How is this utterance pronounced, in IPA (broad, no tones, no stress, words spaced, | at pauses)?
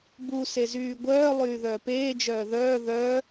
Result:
bu sezyːɡʷœː lˠyːðœːpeː d͡ʒœːðœː ðœ